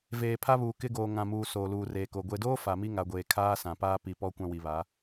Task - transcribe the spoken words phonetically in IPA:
v eː˨ pʰ a˦ β uː˨ k ɪ˦ ɡ oː˨ ŋ ã˨ m uː˨ s oː˨ l uː˨ r eː˨ k o˨ ɡʷ e˨ d oː˦ f a˨ m i˦ ŋ a˨ ɡʷ eː˨ kʰ aː˦ s ã˨ p aː˦ p i˨ p ɔ˦ kʷ ã˦ w i˨ β a˨˦

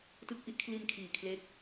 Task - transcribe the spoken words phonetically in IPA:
t ɯ˦˥ k̚ ʔ i˦˥ ʔ kʰ l i˧ n kʰ iː˨˩ kʰ l e˦˥ k̚

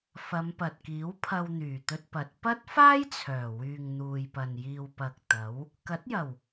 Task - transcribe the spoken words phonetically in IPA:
f ɐ˨˧ m p ɐ˨ t̚ k iː˨˥ w pʰ ɐ˧ w n̪ yː˨˩ t̪ ɵ˧ t̚ p ɐ˨˥ t̚ p ɐ˥ t̚ f aː˥ j t͡sʰ œː˨˩ w yː˨ ŋ n̪ uː˨ j p ɐ˨ n j iː˨ w p ɐ˨ k̚ t̪ ɐ˨˥ w | k ɐ˨˥ t̚ j ɐ˨˩ w

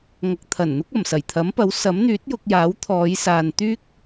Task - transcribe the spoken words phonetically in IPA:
ŋ ɐ˨ k̚ t̪ʰ ɐ˨˩ n n̪ ʊ˥ k̚ ɐ˨˩ m s ɐ˨˩ j t̪ʰ ɐ˨˥ m p ɐ˨˥ w s ɐ˨˥ m n̪ yː˨˥ t̚ j ʊ˧ k̚ j aː˨˥ w t̪ʰ ɔː˨˧ j s aː˨ n t̪ yː˥ k̚

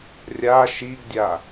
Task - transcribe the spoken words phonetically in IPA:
rʲ a ʃ i ɡ dʲ a

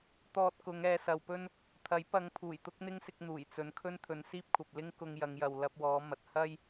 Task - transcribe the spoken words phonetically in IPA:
t̪ ɔː˧ t̚ k ʊ˨˧ ŋ ɛː˨ s ɐ˨ w p ɵ˥ n | t̪ʰ ɐ˨˥ j p ɐ˨˧ ŋ pʰ uː˨˩ j t̪ ʊ˥ k̚ n̪ ɪ˥ ŋ s ɪ˧ k̚ n̪ uː˨˩ j t͡s ɵ˨ n kʰ ɵ˥ n t̪ʰ ɵ˨˧ n s iː˥ p̚ kʷʰ ɐ˨ p̚ l ɪ˥ ŋ k ʊ˧ ŋ j ɐ˨˧ ŋ j ɐ˨ w l ɐ˧ p̚ w ɔː˨˧ m ɐ˨ t̚ h ɐ˥ j

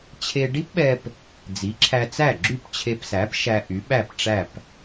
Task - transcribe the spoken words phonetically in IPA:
t͡ɕʰ e˧ ɖ i˥ p ɓ ɛ˧ p | d͡z i˩˥ ǁʰ æ˧ t͡s æ˥˩ ɡ͡ǁ y˥˩ p t͡ɕʰ e˧ p s æ˩˥ p ʃ æ˧ ʔ y˩˥ ɓ æ˥˩ p ʈ͡ʂ æ˥˩ p

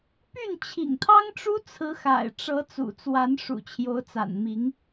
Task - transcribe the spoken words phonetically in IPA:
p y˥˩ n t͡ɕʰ ḭ˨˩ ŋ t̪ʰ ɑ˥ ŋ ʈ͡ʂ u˥ t͡sʰ ɹ̩˧˥ x a̰˨˩ ɪ̯ ʈ͡ʂ ɤ˧˥ t͡s ṵ˨˩ t͡s w a˧˥ n ʂ ṵ˨˩ t͡ɕʰ j o˧˥ ʊ̯ t͡s a̰˨˩ n m i˧˥ ŋ

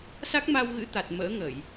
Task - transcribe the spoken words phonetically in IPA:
s a˦˥ k̚ m a˧ w ɣ ɨ̰˧˥ t̪ a˨˩ t̚ m ə̰ː˧˥ ŋ ə˧˩˨ j

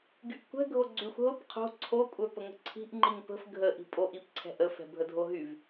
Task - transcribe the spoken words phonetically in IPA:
ɡ y ʔ kʷ ɛ̤ ɡʱ o ɡ͡ǀ y xʷ ɦ ʊ p qʰ o̤ ǀʰ o kʷʼ œ p ə ŋ ə̤ ǀʰ i̤ ʔ ŋ͡ǃ i ŋ p ə̤ f ɡʱ ə ʔ i̤ pʼ o ʔ i p ǀʰ ɛ̤ ʔ ə f ɛ̤ bʱ ə dʱ o ɦ y v

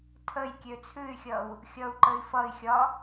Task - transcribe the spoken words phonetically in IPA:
tʰ ə j kʲ ø t͡sʰ ʉ y̯ xʲ ʌ u̯ | xʲ ʌ u̯ ǃ ə i̯ f ʌ i̯ xʲ ɒ

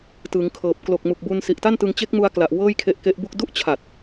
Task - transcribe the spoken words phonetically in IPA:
t ɯ˩˦ ŋ kʰ ɤː˨˩ p̚ k l o˨˩ k̚ m u˨˩ k̚ b u˧ n s i˨˩ ʔ t a˥˩ n t ɯ˧ ŋ t͡ɕ e˦˥ k̚ m u˧ a̯ k l a˨˩ ʔ w ɤː˥˩ j kʰ e˦˥ ʔ k e˦˥ ʔ b u˥˩ k̚ d u˦˥ ʔ t͡ɕʰ a˨˩ t̚

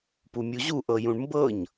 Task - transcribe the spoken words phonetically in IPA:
p u mʲ u ʑ u ʔ ɤ j ũ ɳ m b ɤ ɲ

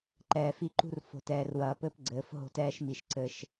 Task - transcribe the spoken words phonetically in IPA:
ǃ ɛː˨ f i˦ ǃ ṳ˦ r f o̤˨ t ɛː˨ r w ɐː˨ p ɘ˦ p ɡ͡ǀ ɘː˨˦ f ɦ o̤˦ t ɛː˦ ʃ m i˨ ʃ ǀ ɘ˦ ʃ

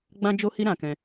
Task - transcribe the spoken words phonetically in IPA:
ɡ͡b ã˦ d͡ʒ o˦ h i˦ ɾ ã˧ k ɛ̃˧

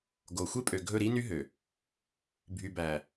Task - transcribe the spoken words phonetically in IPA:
ɡ o˨ xʷ e˦ pʼ ø˨ ɡʱ ɵ˦˨ ɾ i˦ n y˦ ɦ ø˨ | bʱ y˨ b æ˨

